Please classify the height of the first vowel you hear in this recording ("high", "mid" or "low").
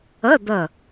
mid